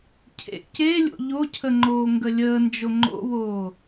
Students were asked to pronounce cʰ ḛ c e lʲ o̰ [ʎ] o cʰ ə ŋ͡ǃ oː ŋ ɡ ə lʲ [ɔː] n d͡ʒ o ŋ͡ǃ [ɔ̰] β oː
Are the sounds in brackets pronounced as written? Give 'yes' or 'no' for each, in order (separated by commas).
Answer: yes, no, no